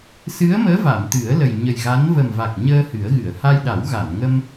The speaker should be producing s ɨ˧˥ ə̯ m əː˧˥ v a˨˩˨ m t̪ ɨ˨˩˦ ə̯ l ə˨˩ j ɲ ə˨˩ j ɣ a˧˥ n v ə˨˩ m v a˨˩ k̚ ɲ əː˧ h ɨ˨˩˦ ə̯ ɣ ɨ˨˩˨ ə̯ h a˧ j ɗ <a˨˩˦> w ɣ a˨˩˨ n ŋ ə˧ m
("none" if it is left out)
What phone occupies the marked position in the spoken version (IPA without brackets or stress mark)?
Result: a˨˩˦